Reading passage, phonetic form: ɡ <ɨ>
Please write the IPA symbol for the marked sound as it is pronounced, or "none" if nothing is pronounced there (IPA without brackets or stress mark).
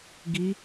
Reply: i